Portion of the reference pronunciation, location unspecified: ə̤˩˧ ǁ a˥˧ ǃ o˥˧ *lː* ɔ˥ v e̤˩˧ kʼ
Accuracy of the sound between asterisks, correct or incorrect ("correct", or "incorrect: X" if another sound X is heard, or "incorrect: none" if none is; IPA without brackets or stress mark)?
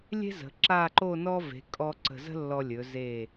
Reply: incorrect: n